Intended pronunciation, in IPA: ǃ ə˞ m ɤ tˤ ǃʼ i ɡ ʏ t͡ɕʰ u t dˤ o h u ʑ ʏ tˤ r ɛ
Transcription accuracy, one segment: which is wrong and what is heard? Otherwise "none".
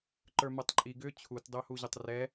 none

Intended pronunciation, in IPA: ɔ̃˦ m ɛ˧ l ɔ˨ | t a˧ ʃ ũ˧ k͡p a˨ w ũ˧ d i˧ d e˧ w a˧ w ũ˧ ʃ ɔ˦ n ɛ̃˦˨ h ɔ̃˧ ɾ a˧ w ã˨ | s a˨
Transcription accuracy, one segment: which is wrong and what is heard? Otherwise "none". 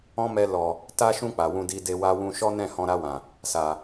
none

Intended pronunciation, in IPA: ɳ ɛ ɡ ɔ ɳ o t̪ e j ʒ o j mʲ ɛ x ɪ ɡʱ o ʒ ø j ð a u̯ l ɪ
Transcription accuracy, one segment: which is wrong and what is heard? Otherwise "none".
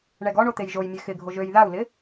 none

